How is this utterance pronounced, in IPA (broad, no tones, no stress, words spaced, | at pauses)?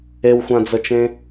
ewxʷãd͡zət͡ʃẽ